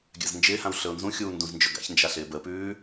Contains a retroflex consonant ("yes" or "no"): no